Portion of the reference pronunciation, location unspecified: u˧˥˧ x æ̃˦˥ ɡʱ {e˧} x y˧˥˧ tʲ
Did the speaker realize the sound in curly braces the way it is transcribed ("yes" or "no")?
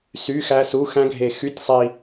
yes